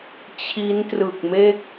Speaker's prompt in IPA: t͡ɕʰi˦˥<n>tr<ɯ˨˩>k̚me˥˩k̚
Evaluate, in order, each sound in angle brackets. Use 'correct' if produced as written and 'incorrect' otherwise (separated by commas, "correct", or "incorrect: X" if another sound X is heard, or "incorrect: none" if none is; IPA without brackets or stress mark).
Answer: correct, correct